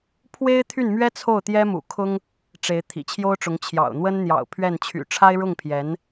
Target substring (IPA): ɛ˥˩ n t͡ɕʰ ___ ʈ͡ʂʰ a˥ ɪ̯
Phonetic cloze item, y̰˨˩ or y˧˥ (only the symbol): y̰˨˩